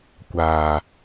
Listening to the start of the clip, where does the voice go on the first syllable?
low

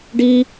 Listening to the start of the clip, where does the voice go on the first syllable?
high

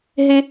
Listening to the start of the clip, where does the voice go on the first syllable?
high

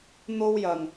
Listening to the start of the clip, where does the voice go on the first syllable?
high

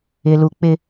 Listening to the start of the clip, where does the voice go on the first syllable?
low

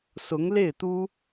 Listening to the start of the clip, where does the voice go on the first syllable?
rising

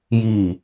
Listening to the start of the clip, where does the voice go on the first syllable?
falling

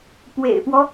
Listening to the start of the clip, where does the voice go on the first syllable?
low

